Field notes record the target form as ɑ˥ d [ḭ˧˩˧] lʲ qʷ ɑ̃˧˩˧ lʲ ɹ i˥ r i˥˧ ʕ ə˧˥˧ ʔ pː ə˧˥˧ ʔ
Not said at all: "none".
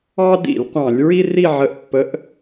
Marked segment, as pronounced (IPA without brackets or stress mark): ḭ˧˩˧